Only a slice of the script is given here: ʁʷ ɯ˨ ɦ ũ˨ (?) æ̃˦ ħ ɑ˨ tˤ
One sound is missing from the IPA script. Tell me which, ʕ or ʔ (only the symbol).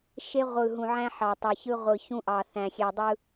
ʕ